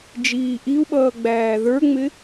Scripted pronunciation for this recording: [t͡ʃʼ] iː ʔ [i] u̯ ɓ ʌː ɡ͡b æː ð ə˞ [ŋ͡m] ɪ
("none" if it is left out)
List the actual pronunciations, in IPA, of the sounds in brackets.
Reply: d͡ʒ, i, ŋ͡m

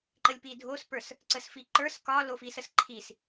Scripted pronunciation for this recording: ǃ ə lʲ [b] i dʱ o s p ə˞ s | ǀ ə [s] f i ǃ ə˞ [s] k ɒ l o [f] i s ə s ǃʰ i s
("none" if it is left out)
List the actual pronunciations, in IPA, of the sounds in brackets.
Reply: p, s, s, f

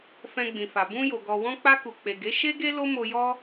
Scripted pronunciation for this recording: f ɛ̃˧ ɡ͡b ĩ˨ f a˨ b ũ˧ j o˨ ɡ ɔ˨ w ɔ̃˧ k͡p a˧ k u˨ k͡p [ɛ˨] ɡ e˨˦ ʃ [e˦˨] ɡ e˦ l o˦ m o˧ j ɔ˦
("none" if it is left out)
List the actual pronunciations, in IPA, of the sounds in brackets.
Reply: e˨, e˦

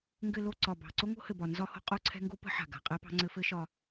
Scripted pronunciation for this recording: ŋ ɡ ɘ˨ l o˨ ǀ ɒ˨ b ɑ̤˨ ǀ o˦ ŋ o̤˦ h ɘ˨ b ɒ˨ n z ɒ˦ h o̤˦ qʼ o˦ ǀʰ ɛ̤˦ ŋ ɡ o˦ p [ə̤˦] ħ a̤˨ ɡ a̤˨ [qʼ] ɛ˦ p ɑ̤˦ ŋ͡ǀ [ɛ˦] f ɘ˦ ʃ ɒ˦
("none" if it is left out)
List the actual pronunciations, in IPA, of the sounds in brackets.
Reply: ə̤˦, qʼ, ɘ˦

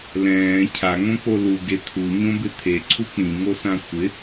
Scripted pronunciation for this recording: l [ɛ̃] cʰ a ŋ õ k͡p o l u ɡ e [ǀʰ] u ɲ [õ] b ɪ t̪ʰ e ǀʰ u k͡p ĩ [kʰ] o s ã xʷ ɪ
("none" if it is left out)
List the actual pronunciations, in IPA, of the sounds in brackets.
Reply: ɛ̃ː, t̪ʰ, õ, ŋ

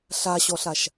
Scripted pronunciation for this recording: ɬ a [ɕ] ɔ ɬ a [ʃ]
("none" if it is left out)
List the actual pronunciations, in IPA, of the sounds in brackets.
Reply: ɕ, ʃ

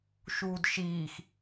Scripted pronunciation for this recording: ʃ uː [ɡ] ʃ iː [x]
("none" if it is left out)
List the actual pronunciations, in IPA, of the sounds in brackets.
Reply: d, x

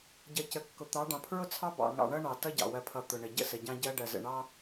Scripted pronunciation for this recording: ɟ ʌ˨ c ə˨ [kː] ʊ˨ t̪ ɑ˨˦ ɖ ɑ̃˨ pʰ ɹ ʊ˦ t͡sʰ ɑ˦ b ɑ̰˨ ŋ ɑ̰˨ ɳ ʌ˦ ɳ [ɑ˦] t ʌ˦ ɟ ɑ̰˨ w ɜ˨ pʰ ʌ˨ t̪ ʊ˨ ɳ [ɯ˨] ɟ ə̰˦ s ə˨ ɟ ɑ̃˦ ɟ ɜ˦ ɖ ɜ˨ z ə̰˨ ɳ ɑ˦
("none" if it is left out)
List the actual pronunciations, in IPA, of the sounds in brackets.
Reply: kː, ɑ˨, ə˨

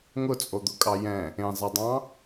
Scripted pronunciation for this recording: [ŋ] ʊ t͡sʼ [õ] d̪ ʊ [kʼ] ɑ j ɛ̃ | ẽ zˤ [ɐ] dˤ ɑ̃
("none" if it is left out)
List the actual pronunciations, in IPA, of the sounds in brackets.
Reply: ŋ, o, kʼ, ɐ

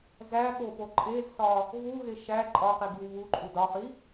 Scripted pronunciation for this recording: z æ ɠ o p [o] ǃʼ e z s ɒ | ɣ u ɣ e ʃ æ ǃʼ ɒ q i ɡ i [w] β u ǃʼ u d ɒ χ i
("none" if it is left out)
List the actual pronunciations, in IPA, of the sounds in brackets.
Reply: o, w

